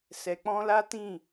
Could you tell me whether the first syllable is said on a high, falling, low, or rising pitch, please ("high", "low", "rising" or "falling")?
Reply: low